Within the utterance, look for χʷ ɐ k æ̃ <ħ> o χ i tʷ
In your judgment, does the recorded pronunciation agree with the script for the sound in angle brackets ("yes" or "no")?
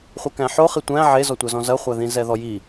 yes